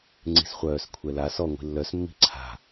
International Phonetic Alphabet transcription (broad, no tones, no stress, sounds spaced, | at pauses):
ŋ͡ǀ i̤ s χʷ œː s kʷʰ ɛ l a s ɔ ŋʷ i̤ lː œ s mː i̤ ǀʰ a̤